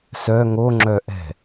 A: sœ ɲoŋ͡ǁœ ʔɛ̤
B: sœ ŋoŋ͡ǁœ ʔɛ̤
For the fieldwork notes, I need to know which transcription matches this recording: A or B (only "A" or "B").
B